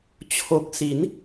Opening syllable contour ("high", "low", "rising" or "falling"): low